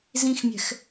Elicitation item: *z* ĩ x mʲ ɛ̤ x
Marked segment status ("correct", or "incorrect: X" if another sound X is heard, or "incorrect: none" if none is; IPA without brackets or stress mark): correct